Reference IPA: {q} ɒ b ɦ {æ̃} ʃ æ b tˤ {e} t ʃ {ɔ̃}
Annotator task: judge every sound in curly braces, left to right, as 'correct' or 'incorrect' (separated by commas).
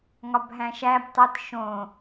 incorrect, correct, correct, incorrect